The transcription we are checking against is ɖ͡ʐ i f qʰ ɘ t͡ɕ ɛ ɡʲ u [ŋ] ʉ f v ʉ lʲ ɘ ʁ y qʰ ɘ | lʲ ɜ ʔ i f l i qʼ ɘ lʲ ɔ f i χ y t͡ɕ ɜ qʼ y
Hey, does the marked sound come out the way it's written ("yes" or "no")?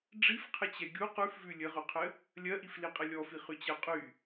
no